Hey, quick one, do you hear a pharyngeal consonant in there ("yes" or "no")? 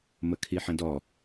yes